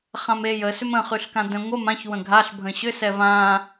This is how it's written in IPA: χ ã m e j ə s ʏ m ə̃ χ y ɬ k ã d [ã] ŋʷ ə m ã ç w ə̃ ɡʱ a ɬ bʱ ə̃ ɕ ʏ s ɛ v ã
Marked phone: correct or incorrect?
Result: incorrect